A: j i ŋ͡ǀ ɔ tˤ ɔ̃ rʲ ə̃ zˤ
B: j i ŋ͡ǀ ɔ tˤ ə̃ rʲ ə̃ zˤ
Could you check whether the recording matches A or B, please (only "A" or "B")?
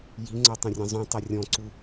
B